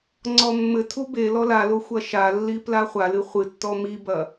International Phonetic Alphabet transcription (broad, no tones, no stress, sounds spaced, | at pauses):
ŋ͡ǀ ɔ mː ɘ tʰ u b e l ɔ l a l o xʷ ɐ ʃ a lː i p l a χʷ a l ɨ χʷ ɨ tː ɔ m i b ɐ